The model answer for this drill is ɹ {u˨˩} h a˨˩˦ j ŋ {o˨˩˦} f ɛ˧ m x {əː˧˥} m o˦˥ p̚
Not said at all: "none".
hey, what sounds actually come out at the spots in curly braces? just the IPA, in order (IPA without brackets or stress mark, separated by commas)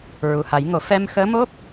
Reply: u˨˩, o˨˩˦, əː˧˥